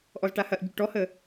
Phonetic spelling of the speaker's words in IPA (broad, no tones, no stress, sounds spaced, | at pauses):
ʔ ɔ z ʈ a h ɐ ʔ ɟ u ʈ ɔ h ə